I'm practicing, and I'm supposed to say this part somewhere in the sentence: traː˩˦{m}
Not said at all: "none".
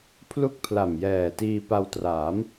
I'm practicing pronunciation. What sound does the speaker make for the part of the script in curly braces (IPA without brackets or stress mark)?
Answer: m